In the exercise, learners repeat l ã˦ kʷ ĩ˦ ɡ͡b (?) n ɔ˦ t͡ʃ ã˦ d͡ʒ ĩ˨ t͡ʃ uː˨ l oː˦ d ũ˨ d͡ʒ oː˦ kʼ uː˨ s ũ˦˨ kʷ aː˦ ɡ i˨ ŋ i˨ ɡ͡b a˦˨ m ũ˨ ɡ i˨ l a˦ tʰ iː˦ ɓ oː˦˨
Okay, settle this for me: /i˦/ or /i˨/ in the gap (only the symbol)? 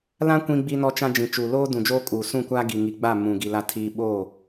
i˦